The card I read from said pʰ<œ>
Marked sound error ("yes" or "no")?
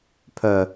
no